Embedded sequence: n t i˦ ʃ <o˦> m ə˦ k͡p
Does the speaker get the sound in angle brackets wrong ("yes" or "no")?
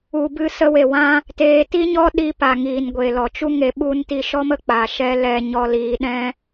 yes